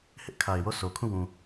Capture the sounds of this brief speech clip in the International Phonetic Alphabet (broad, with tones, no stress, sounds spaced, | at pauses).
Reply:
h ɪ˦ ʔ kʰ a˨ ɪ̯ w o˦˨ s o˨ kʰ ũ˦˨ w ũ˨